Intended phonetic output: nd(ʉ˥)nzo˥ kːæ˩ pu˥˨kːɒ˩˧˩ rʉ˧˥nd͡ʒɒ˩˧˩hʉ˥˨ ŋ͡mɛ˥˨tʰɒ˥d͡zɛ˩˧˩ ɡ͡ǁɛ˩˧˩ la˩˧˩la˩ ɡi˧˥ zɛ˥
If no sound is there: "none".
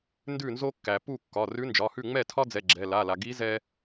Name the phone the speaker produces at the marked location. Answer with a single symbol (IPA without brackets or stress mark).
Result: ʉ˥˨